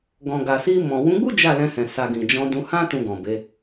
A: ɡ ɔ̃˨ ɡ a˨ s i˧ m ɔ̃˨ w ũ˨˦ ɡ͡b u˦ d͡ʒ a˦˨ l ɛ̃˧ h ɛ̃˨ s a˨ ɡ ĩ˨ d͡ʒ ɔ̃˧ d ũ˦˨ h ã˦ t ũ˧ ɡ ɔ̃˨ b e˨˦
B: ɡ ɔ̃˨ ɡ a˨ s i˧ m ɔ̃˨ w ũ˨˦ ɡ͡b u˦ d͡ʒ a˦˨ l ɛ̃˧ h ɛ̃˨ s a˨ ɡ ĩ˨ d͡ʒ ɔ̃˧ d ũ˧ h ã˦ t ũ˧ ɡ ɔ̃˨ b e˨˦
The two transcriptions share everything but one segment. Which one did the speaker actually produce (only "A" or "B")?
B